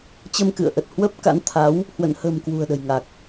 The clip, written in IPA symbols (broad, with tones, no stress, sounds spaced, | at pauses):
t͡ɕ ə˧ m k ɨ̰˧˨ ə̯ ʔ ə˨˩ t̚ h w ə˦˥ p̚ k a̰˧˥ n t̪ʰ a˨˦ w | h w ə̰˧˨ n h ə̤˨˩ m k w ṳ˨˩ ə̯ ɗ ə̤˨˩ j ŋ a˨˩ k̚